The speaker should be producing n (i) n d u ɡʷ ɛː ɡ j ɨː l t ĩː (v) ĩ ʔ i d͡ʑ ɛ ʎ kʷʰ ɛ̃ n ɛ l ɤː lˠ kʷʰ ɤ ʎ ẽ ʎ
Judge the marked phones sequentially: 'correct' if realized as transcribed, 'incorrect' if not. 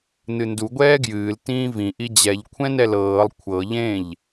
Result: incorrect, correct

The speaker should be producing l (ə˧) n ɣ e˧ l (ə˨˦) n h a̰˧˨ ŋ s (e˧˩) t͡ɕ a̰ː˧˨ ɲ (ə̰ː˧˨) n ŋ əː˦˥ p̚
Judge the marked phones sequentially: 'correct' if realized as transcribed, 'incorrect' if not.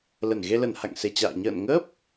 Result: incorrect, incorrect, correct, correct

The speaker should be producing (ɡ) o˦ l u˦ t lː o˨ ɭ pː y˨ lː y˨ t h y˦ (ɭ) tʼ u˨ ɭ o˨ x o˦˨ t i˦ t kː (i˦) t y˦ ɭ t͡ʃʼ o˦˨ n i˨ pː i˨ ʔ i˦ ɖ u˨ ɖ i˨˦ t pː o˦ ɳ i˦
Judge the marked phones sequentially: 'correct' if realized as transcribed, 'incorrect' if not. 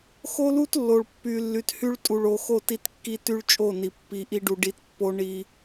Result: incorrect, correct, correct

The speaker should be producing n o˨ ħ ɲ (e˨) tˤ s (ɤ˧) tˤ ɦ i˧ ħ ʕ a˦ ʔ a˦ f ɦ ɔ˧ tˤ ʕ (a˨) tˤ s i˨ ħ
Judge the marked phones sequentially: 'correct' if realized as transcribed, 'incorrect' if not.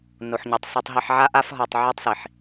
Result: correct, correct, incorrect

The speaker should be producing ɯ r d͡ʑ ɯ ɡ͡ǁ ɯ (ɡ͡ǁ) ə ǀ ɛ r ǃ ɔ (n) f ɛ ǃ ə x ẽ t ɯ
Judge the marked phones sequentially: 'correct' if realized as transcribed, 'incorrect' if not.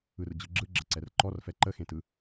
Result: correct, incorrect

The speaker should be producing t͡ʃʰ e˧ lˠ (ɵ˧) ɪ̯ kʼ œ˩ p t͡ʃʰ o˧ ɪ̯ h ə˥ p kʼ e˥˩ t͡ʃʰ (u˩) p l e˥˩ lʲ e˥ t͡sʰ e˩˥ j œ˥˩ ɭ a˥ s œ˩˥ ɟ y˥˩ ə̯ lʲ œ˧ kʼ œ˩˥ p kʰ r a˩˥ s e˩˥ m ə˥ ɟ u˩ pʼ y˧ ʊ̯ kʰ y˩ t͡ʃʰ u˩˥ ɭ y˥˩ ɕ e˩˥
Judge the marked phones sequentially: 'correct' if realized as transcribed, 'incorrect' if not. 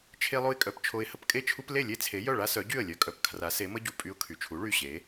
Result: incorrect, incorrect

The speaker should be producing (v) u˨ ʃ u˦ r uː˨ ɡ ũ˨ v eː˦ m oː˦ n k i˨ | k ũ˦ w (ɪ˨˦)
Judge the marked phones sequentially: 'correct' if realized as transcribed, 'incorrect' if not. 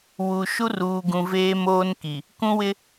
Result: incorrect, incorrect

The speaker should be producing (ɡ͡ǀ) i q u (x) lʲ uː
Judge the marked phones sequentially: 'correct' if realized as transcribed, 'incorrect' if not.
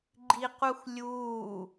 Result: incorrect, correct

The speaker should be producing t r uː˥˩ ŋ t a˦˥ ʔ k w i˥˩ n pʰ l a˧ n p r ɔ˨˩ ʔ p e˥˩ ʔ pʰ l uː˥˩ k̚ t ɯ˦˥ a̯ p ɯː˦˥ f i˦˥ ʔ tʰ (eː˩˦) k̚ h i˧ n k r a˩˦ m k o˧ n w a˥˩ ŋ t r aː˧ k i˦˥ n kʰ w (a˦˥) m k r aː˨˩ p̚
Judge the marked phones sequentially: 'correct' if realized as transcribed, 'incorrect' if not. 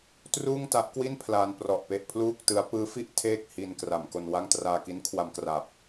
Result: incorrect, incorrect

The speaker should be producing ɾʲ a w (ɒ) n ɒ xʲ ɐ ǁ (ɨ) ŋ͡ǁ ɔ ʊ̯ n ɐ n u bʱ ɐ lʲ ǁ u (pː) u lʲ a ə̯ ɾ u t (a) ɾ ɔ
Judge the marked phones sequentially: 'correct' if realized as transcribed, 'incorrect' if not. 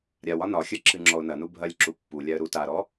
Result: correct, correct, correct, correct

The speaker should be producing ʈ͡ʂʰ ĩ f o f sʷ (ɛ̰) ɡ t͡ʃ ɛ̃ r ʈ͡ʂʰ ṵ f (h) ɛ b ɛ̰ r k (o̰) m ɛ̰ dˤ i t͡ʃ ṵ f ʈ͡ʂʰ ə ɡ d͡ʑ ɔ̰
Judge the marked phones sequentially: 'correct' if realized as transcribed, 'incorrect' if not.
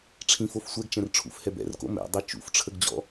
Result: incorrect, correct, correct

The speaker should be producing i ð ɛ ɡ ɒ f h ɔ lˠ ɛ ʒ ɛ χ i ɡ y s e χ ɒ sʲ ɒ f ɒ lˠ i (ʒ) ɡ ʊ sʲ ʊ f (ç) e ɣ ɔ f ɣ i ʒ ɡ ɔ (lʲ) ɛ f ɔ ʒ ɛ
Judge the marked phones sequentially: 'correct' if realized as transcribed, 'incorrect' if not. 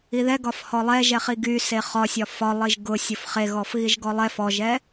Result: correct, incorrect, incorrect

